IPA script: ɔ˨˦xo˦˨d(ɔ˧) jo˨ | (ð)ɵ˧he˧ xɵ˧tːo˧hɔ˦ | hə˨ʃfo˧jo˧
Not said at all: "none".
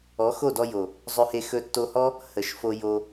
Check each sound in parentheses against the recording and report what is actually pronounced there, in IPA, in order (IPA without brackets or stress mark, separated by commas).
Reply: ɔ˧, zˤ